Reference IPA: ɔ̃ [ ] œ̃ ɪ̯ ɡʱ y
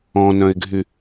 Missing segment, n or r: n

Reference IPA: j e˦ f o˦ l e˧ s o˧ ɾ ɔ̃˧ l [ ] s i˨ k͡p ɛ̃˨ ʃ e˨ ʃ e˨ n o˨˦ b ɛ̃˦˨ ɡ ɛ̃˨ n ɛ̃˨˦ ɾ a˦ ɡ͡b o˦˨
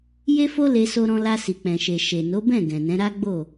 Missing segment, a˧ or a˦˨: a˧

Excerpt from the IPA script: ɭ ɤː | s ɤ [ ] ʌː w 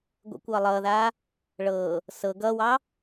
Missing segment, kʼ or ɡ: ɡ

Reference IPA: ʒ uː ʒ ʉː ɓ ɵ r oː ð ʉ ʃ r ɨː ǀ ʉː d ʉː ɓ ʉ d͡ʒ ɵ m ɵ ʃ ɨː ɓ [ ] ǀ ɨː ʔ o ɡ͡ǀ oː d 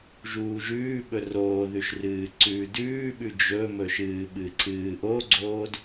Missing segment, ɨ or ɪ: ɨ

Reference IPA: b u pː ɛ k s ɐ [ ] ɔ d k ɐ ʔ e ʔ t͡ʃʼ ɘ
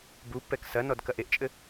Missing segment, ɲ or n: n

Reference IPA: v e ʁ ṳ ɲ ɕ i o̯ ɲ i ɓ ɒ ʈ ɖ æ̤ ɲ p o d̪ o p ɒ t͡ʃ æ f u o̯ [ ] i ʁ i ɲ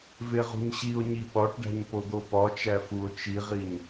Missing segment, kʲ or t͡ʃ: t͡ʃ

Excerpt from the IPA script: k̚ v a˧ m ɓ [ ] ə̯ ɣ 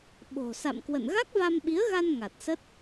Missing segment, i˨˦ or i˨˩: i˨˦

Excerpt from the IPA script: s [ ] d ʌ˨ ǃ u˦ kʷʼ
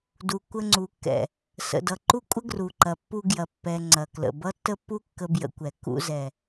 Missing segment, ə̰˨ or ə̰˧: ə̰˨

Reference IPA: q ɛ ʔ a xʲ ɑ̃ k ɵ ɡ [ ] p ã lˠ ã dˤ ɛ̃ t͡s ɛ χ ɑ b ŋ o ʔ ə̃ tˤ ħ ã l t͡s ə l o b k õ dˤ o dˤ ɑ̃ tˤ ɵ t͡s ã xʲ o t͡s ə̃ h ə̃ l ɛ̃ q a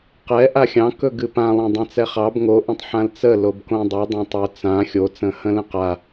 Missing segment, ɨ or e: ɨ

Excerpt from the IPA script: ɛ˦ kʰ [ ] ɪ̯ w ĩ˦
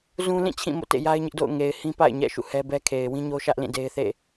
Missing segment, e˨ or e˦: e˨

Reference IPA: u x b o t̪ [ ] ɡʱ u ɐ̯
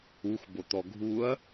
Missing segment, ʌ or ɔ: ɔ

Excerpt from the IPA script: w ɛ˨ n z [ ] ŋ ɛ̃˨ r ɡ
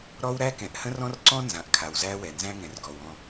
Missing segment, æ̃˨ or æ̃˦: æ̃˦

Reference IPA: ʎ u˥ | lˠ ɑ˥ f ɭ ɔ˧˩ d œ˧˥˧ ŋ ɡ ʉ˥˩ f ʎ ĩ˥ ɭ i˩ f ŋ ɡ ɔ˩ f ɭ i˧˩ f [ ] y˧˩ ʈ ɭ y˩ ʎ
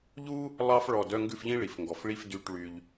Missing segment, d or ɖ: d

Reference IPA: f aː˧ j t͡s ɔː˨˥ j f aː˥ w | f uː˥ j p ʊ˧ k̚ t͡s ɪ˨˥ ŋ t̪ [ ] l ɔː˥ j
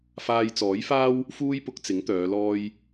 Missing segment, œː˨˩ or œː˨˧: œː˨˧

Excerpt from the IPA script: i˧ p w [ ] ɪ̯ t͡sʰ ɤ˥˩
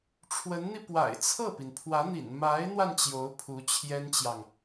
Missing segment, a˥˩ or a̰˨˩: a̰˨˩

